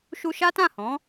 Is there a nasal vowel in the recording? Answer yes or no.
yes